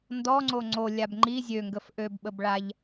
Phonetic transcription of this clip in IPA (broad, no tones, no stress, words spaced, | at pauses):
ndɔŋ͡ǀo ŋ͡ǀolʲab ŋ͡ǃi zʲøŋɡəf ʔøbɓəbɭaʎ